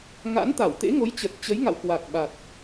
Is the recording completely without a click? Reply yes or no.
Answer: yes